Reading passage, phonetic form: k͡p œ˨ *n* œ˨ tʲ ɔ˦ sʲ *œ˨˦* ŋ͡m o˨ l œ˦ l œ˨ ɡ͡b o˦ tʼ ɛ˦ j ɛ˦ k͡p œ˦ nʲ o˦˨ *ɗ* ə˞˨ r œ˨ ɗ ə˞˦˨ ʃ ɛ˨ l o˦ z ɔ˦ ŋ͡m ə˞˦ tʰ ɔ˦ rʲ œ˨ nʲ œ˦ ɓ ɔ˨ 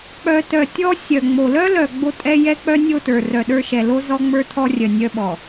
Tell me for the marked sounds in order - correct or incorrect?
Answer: incorrect: t, incorrect: œ˨, incorrect: t

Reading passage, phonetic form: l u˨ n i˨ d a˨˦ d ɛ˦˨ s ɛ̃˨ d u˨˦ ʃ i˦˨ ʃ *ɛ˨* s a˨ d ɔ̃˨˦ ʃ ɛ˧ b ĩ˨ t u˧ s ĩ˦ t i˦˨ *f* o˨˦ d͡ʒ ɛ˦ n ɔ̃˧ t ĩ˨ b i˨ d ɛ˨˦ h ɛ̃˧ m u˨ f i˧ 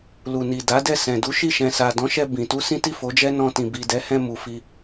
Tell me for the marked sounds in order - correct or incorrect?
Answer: incorrect: ɛ̃˨, correct

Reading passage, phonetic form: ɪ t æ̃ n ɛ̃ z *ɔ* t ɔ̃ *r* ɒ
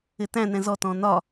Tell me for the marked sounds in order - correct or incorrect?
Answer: correct, incorrect: n

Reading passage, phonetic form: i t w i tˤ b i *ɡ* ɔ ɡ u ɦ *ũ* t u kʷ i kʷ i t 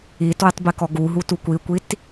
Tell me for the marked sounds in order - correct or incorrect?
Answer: incorrect: k, incorrect: u

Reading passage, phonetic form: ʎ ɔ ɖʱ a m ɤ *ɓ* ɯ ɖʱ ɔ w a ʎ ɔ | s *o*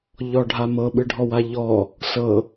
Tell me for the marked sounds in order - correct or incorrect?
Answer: correct, incorrect: ɤ

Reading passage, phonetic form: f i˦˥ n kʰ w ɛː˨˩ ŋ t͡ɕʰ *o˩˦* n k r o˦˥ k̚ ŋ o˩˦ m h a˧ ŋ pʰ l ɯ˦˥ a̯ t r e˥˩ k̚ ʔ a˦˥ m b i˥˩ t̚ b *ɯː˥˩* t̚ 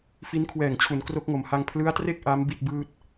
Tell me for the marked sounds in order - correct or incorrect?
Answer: incorrect: u˩˦, correct

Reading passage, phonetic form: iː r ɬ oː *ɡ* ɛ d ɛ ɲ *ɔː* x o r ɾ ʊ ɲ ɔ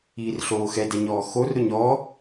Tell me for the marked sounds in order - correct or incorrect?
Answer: incorrect: x, correct

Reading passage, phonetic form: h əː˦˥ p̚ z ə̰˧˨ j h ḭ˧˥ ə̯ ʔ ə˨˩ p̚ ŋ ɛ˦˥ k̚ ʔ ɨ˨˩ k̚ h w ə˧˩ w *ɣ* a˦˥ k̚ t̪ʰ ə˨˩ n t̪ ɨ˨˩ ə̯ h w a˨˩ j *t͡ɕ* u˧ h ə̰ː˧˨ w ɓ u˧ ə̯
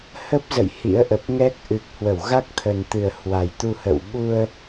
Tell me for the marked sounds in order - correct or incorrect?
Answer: correct, incorrect: t̪

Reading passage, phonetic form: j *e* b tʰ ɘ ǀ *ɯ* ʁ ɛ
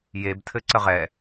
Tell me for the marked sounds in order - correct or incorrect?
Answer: correct, incorrect: ə

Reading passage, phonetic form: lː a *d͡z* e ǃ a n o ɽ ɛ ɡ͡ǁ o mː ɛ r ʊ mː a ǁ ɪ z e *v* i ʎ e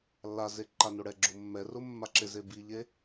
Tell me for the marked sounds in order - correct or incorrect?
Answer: incorrect: z, incorrect: b

